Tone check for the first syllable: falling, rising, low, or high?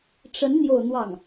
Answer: rising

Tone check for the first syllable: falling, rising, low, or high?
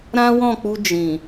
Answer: high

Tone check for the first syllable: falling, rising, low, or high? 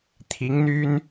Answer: rising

